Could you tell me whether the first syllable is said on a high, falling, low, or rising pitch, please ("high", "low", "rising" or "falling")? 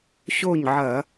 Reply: falling